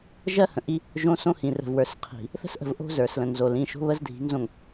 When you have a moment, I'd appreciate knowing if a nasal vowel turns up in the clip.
yes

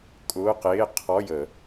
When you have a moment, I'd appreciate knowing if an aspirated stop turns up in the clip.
yes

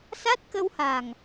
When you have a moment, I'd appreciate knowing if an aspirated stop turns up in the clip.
no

